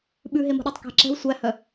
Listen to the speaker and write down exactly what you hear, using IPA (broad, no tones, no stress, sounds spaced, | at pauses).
ɓ ʉ ɦ e m o̤ ɗ æ tˤ k ɛ̤ ǁ ɛ̤ w sʷ æ h œ